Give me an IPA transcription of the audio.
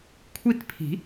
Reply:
kʷʰ i˥˧ t pʰ i̤˨˩˦

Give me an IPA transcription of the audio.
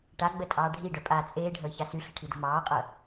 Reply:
ʈ a ɡ͡b ə tʼ ɑː ɖʱ i ɖ œ pʼ aː t͡sʼ eː ɖʱ əː ç a s y ɬ ə̤ ʈʰ i d ə̤ m ɑː qʼ œ

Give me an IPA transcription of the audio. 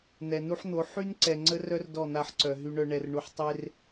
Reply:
n̪ ɛ˨ n u˦ ħ n̪ o˨˦ ħ y˦ n ǀ ɛ˨ ŋ͡ǀ ə˦ r œ˦ r d ɔ˦˨ n̪ a˦˨ ħ ǀ œ˨ ɦ y˨ ɳ œ˨ ɳ ɛ˨ r ɳ u˨ ħ tˤ e˦ r

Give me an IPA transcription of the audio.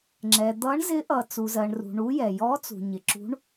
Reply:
ŋ͡ǁ ɛ˩ d̪ ʌ˨˥ ɳ z ɪ˨˥ ʔ ʌ˩ t͡s u˩ z ɜ˩ ɳ r ṳ˩ ɳ u˨˥ j ɛ˩ j ɔ˨˥ t͡s ṳ˩ ɲ ɪ˩ ǁ ṳ˨˥ ɳ

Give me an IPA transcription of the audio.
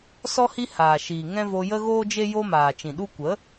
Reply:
s ɔ˦ h i˦ h aː˨ ʃ iː˨ ŋ ɛ̃˦ v o˧ j ə˦ ɣ oː˦ d͡ʒ e˦ j o˦ m aː˨ t͡ʃ ĩ˨ ɗ u˧ kʷ ə˨˦

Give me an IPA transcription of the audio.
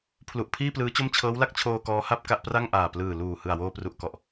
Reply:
pʰ l u˨˩ ʔ pʰ iː˥˩ p l ɯː˦˥ t͡ɕ o˥˩ m t͡ɕʰ ɤː˦˥ w l a˥˩ k̚ t͡ɕʰ oː˧ k ɔː˦˥ h a˥˩ p̚ k a˥˩ ʔ p r a˥˩ ŋ ʔ aː˨˩ p l ɯː˨˩ l uː˨˩ h ɯ˨˩ a̯ w oː˧ p r u˨˩ ʔ k ɔ˨˩ ʔ

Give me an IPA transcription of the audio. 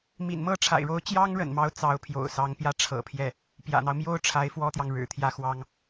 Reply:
m ḭ˨˩ n m ɤ˥ ʈ͡ʂʰ a̰˨˩ ɪ̯ ɻ o˧˥ ʊ̯ t͡ɕ j ɑ˥ ŋ ɻ ə̰˨˩ n m ɑ˧˥ ʊ̯ t͡s ɑ˧˥ ʊ̯ pʰ j o̰˨˩ ʊ̯ s ɑ˧˥ ŋ p j ä˥ ʈ͡ʂʰ ɤ̰˨˩ pʰ j ɛ˥˩ | p j ä̰˨˩ n̪ ɑ˦ ʊ̯ m j o˥ ʊ̯ ʈ͡ʂʰ a˧˥ ɪ̯ f w ɔ˥ t̪ j ɑ˨ ŋ ɻ ɻ̩˨˩ t̪ʰ j ä˥˩ x w ɑ˥ ŋ

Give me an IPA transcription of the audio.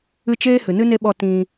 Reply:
ɨ˧ t͡ʃ eː˦ h ɨ˨ n ɨ˦ n e˦ ɓ ɔ˧ t ĩ˧

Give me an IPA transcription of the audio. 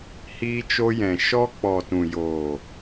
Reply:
h iː˧ t͡ʃ o˧ j ɛ̃˨ ʃ ɔ˧ k͡p ɔ˨ t ũ˨ j oː˨

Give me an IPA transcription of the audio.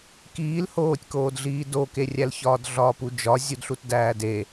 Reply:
k iː l h oː tʲ k oː d ɮ iː d o k e rʲ æ l ç ɒː d ɮ ɒː p u d͡ʒ ɒ zʲ u d ɬ u t d æː d e

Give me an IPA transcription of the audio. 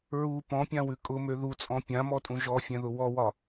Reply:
ɹ u p ɔ̃ pʲ ã w ʉ kʼ ʊ m ø ð u t͡sʼ ɔ̃ pʲ ã m ɔ tʼ ũ ʒ ɔ fʲ ɛ̃ ð ʊ w ɔ w ɒ

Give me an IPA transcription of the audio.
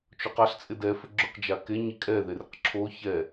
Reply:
t͡ʃ o q a ɬ t͡sʼ ɪ d ɛ f ɪ ɡ͡ǁ ʊ q d͡ʒ a k e ɲ i kʼ ɛ ð e r ɪ q ǁʰ o ç ɛ

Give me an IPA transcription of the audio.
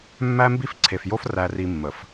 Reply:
mː æ˦ m b i˦ f ǀʰ e˨ f j o˦ f r æ˨ r i˨ mː ə˨ f

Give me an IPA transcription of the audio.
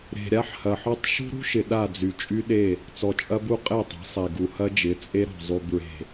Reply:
ɾ e̤˨ ɾʲ a˦ ħ h ɐ˨ ħ ɔ˦ tˤ ʃ ṳ˦ ɾ ṳ˦ ʃ ɪ˨ ɗ a˦˨ d͡z y˨ t͡ʃʼ y˦ ɗ e˦˨ | t͡s ɔ˨ t͡ʃʼ ɐ˦ b u˦ qʼ e˦˨ tˤ e̤˨˦ sˤ e˨ ɡ u˨ h ɐ˦ d͡ʒ ɪ˨˦ t͡sʼ e˦ ɾ ɔ̤˨ zˤ y˨ b ɹ e̤˨

